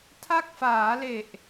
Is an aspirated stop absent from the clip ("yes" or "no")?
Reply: no